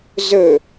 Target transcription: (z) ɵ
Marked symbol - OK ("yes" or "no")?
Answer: yes